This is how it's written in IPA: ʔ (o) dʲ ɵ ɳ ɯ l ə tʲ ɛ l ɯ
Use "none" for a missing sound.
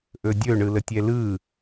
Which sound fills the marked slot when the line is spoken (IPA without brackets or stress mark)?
ɵ